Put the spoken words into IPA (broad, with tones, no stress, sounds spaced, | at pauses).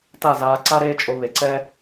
t a˦˨ z aː˧ ǀ a˦ ɾ eː˦ t͡ʃʼ o˧ β e˨ ǀ ɛː˦